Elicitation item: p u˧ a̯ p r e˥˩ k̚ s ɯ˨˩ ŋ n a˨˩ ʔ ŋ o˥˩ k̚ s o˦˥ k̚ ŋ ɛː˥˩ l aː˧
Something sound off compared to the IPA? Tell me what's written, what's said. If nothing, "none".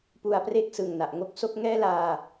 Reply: none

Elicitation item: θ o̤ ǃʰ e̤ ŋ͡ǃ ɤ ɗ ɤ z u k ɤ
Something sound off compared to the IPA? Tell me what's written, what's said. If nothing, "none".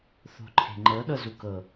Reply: none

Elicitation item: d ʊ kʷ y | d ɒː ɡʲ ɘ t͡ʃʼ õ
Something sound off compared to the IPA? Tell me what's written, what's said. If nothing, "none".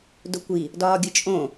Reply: y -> i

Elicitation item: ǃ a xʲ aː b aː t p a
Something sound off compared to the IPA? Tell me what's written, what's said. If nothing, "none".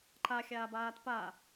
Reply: none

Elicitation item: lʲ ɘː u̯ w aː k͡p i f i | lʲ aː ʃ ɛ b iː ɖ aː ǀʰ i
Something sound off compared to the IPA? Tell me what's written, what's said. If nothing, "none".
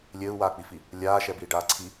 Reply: none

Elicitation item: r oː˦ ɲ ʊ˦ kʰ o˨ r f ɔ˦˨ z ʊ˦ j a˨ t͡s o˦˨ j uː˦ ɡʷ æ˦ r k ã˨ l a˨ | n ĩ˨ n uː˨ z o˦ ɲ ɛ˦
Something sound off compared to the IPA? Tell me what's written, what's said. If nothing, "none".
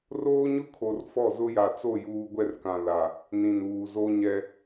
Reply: æ˦ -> ɛ˦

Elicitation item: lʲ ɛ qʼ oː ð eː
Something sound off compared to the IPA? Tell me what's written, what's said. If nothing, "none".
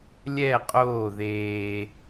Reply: none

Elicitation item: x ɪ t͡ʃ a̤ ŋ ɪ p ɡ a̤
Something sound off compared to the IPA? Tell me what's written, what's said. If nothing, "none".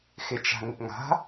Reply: ɡ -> ŋ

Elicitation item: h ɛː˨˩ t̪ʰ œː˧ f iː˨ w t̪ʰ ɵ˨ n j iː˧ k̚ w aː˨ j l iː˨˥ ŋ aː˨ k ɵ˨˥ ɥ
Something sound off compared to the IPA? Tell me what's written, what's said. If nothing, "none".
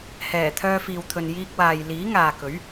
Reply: none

